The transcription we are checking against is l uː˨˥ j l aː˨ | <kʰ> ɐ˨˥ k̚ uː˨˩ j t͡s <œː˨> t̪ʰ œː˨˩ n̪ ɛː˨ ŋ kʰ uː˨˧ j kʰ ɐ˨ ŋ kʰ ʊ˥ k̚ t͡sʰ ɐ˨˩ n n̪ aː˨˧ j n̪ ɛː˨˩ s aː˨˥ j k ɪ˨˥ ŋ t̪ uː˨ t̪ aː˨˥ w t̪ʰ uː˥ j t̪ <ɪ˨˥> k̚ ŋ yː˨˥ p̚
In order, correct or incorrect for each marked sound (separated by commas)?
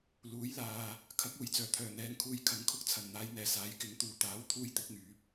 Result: correct, incorrect, correct